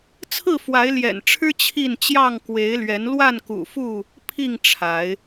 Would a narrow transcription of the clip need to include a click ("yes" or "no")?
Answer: no